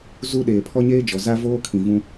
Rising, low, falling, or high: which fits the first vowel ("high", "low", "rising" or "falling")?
high